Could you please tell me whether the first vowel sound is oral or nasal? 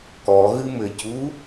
oral